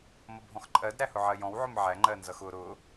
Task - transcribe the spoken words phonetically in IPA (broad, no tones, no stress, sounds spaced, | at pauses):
m ʌ bʱ ɔ̃ x ǃʼ ɜ d ɾ æ h ʊ ʕ ɜ j ɔ̃ w ʕ ʊ m ʕ æ ŋ͡ǃ ɜ n z ʌ x ʊ ɾ ʊ